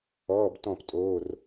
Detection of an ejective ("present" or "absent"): present